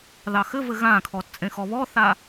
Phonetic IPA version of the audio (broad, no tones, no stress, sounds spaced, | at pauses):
ð ɑ x ɘ v ɘ ɣ ã kʰ ɔ t t͡sʼ ẽ x ɔ β ɔ θ a